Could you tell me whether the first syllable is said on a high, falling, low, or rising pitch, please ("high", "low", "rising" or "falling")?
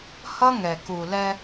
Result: high